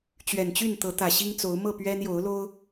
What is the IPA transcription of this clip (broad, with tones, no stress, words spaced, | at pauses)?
t͡ɕɥɛ˨˩nt͡ɕy˥˨n t̪ɤ˨˦t̪ä˨˩ɕi˦ŋt͡so˨˦ʊ̯ mɤ˥˨pɥɛ˦n jo˨˦ʊ̯lo˦ʊ̯